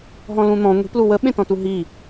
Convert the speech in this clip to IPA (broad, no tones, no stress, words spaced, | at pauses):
ɦɔ̃lũn̪ɔ̃ ŋʷi̤plu wəɓẽtɔ̃tu ɦi